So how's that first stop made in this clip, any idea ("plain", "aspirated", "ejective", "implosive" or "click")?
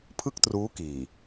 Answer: aspirated